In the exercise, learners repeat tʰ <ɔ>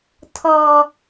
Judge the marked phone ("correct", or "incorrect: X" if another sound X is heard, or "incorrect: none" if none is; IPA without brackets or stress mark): correct